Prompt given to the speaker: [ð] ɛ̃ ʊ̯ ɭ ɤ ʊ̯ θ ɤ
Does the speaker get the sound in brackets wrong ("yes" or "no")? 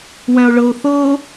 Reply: yes